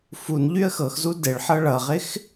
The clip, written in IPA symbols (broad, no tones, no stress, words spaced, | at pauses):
fun ʎyə̯xɤxzu deɭħɤ ɭʌʁɪx